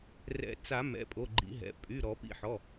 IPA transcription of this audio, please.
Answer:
r ɛ̰˨˩˦ t͡s a˨˩˦ m ɛ̰˩˧˩ pʼ o˩˧˩ ɡ͡ǃ ḭ˨˩˦ ɦ ɛ̰˩˧˩ pʼ y˩˧˩ ɾ ɔ˨˩˦ p ḭ˨˩˦ ħ ɔ˩˧˩

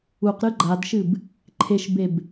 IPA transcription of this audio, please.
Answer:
u q ɾ ɨ ɡ͡ǃ a d ʃ ɨ b | ǃʰ e ʃ b e b

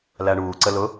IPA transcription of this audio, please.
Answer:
l æ ɳ uː ǀ ə l ʊ

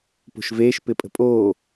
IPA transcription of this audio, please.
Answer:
p o̤ ʃ v eː ʃ p ɪ pʼ ə̤ pʼ oː

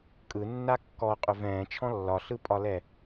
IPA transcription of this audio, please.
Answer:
kʼ ɯ nː a kː ɔ qʼ ʏ v ɛ̃ː t͡ʃʰ ɔ̃ lː ɒ ɬ ɯ pʼ ɒ l ɛ

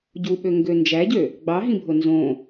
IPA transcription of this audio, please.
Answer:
ɟ u ɓ ø ŋ ɡ ø n d͡ʒ æ ɟ ø | ɡ͡b ɑ ɦ ĩ bʱ o n z õ

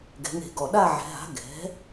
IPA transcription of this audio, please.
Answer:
ɡ ɛ̤˩˧ ŋ e̤˧˩˧ ɡ ɔ˨˩ ɗ a˦˨ ʕ ɛ̤˩˧ ɦ a̤˩˥ ɡ ɛ̤˩˥

